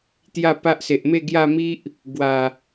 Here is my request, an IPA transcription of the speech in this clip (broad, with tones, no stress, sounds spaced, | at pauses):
t̪ j a˥˧ p a˦ ʔ s e˨ ʔ m e˥˧ ɡ j a˥˧ m i˦ ʔ | ɡ w a˨˩